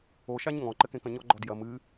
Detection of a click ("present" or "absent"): present